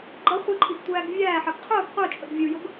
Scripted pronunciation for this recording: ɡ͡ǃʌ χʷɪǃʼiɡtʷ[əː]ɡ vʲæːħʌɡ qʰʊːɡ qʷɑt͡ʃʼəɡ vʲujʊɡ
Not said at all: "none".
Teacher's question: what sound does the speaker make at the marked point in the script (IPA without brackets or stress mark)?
æː